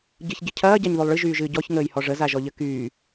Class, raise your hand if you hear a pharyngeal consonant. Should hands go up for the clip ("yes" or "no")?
no